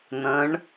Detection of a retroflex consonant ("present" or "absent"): present